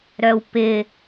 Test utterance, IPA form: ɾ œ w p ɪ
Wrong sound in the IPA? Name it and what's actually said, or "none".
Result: none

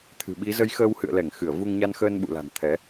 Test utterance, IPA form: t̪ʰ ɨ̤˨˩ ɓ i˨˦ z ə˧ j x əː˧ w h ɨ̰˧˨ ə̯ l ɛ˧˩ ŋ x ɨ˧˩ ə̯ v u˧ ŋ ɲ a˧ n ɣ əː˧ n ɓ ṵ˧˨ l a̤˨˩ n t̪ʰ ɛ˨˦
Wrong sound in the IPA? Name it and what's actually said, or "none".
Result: ɣ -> x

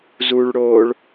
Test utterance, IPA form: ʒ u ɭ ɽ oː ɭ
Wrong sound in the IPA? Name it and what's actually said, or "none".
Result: ʒ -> z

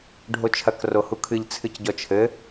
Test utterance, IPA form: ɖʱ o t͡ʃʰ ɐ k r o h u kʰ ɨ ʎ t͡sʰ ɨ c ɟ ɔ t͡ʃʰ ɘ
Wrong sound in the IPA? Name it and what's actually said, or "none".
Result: none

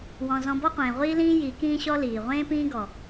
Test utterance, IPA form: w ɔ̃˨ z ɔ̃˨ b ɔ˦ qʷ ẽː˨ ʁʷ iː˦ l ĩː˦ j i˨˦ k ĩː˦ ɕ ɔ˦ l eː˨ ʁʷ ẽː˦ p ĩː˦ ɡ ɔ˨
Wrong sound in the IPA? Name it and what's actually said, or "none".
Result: eː˨ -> iː˨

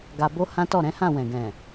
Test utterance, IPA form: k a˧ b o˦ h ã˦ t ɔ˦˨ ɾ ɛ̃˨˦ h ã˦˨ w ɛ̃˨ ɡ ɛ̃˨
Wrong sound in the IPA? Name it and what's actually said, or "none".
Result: k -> ɡ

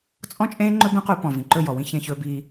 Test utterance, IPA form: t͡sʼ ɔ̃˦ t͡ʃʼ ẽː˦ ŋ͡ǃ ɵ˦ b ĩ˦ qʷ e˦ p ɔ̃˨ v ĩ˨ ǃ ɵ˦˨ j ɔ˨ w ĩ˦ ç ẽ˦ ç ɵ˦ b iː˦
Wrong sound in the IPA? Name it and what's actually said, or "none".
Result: none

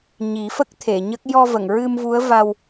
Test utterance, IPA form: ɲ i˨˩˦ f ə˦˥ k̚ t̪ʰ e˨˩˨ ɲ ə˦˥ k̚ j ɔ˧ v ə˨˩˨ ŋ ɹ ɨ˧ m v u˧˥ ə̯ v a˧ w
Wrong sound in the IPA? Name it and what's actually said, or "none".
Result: none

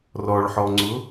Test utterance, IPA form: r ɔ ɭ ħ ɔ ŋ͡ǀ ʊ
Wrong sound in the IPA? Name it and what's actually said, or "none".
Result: none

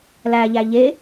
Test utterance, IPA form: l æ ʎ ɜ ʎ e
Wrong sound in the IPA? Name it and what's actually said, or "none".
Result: ɜ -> æ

